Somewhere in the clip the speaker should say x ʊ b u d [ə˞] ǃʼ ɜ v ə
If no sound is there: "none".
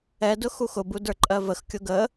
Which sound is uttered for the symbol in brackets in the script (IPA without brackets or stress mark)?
ə˞